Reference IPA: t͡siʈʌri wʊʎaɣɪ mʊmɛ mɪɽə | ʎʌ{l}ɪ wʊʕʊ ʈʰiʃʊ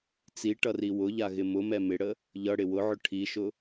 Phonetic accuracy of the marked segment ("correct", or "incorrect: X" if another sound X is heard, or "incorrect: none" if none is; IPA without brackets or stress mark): incorrect: ɽ